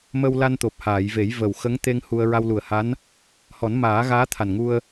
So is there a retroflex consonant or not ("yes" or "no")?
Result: no